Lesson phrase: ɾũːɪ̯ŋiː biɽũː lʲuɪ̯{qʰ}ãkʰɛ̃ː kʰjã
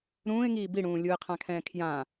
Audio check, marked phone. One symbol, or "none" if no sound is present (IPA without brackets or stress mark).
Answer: qʰ